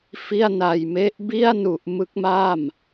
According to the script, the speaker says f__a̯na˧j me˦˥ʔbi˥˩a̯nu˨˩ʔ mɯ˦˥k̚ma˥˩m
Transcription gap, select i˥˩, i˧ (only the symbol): i˥˩